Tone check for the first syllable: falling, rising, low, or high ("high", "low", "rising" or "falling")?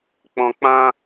low